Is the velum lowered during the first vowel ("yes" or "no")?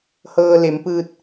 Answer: no